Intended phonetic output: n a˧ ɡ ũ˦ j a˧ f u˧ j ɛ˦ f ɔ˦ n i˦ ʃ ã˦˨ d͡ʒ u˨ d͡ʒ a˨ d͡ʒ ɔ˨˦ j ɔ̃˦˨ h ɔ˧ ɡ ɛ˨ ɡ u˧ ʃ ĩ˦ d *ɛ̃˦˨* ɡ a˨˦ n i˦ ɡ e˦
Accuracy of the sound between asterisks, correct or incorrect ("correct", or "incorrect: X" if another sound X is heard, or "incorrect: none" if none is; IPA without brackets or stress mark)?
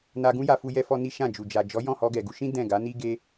correct